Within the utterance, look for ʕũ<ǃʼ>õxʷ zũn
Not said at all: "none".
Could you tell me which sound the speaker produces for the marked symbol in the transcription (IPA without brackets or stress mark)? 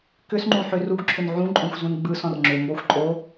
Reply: ǃʼ